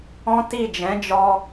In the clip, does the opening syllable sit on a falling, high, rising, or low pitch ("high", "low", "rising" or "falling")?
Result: high